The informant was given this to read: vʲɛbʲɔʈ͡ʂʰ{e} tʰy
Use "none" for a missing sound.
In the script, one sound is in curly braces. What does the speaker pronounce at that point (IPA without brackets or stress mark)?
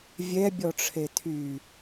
e